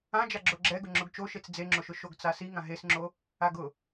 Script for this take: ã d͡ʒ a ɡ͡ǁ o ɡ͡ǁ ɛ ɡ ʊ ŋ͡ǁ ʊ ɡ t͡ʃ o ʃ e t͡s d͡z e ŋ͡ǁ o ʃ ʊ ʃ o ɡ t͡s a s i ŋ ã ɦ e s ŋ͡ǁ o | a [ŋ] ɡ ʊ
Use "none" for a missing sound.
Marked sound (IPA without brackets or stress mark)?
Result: none